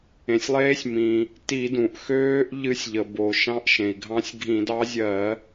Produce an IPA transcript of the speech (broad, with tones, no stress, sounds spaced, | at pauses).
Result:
ẽ˩ sʲ lˠ eː˧˥ sʲ m ĩ˩ | t i˧˩˧ d ũ˩ ʔ x øː˧˥ ʔ ʎ ɨ˧˥ sʲ ʎ ə˩ b o˩ ʃ ɑ̃˧˥ ʔ ʃ ẽ˩ i̯ ɡʱ ɑ̃˧˥ sʲ ɡʱ ĩ˧˩˧ d ɑ˧˥ zʲ ɜ˧˩˧